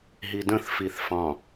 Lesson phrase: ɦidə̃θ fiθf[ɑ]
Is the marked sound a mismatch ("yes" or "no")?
yes